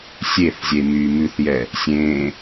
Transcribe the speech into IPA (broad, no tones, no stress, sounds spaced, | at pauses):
sʲ e θ zʲ e m yː m ʉ θ j ɛ | sʲ ẽː